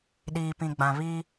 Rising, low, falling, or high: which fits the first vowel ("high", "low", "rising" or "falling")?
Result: low